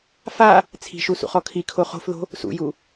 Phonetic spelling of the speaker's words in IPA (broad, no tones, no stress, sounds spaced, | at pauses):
f a | t͡sʰ i̤ ʃ u s ṵ χ ɔ kʰ i kʰ o χ o̤ f ð o̤ | s ṵ j u